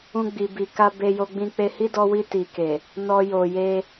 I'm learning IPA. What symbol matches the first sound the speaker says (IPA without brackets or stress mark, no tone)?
ũ